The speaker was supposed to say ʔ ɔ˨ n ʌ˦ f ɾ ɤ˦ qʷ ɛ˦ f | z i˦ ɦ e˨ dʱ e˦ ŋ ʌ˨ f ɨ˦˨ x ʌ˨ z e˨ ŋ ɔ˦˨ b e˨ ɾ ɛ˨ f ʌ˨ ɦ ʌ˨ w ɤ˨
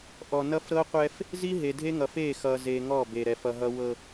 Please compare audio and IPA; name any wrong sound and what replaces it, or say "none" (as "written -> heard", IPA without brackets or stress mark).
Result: ɨ˦˨ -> e˦˨